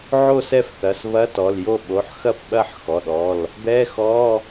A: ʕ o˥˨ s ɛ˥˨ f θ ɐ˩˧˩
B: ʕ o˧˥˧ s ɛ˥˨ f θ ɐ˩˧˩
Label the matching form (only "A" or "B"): A